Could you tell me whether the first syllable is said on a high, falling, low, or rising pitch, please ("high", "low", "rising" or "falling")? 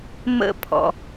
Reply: high